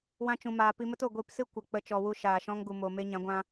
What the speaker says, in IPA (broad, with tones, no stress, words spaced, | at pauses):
wã˦t͡ʃũ˧maː˧ pi˧mə˦to˨ ɡʷi˧psɨ˦ kʷə˨k͡pə˧ t͡ʃɔ˧wu˦ ʃaː˨ʃɔ̃˦ŋɡu˨mo˨ me˦ɲã˨˦ ɡʷã˧